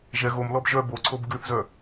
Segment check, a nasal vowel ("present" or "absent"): absent